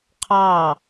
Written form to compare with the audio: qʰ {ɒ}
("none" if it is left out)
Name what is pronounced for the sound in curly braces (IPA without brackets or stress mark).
ɑ